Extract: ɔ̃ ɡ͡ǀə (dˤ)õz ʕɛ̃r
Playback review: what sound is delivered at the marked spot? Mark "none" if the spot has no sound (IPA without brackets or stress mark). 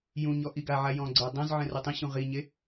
dˤ